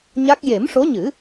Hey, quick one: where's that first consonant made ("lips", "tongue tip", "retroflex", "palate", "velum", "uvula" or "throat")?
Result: palate